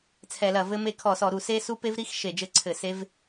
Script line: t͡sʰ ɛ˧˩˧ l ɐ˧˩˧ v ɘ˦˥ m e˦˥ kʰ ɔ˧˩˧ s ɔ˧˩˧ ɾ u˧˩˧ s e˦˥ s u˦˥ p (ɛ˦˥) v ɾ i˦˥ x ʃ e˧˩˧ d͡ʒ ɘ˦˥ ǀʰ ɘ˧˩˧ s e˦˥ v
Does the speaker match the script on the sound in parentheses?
no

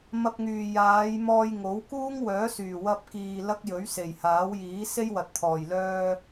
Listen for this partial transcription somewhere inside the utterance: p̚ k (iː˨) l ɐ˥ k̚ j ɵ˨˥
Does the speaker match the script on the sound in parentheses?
yes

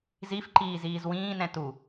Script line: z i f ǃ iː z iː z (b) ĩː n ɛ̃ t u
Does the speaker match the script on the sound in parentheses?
no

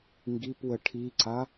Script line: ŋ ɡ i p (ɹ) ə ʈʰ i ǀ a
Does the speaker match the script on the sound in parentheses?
no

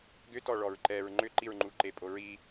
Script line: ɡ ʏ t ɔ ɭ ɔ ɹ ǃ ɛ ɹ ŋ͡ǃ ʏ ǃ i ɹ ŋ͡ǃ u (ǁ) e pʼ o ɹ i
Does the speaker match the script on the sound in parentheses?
no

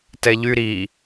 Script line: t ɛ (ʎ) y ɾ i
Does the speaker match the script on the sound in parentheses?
yes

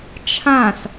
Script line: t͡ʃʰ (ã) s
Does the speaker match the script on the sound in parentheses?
yes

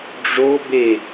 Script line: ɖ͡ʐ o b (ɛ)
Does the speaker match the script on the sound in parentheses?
no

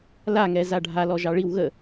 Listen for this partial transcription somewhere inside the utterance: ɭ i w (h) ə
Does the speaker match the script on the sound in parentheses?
no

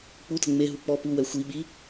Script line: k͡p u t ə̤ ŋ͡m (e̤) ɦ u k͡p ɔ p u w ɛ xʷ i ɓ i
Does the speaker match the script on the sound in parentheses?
no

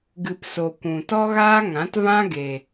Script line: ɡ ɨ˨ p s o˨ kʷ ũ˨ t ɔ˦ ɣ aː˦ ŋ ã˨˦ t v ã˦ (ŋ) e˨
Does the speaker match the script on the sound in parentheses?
no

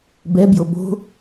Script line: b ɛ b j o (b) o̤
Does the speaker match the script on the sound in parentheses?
yes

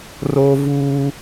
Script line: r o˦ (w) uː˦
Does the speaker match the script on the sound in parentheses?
no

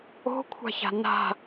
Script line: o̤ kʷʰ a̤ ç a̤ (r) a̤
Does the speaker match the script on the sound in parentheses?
no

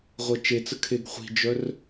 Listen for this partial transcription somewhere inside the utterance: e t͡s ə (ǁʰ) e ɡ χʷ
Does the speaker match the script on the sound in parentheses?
no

